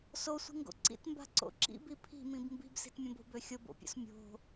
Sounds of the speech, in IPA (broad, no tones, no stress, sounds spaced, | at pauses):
s o sʷ i̤ ŋ ɡ o̰ ǀ ḭ t m b a̤ ǀ o̰ ǁ ḭ b i pʰ i̤ m ĩ b m b i̤ b s i̤ t mʲ õ b o̤ b ø xʲ o b o̰ pʲ o̰ s mʲ o̤